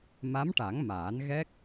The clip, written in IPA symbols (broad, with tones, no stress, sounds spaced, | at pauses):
m a˧˥ m ʈ a˨˩˦ ŋ m aː˨˩˦ n ɣ ɛ˦˥ k̚